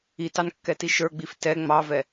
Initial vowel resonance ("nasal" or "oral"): oral